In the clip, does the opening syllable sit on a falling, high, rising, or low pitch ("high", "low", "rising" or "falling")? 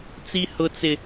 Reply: high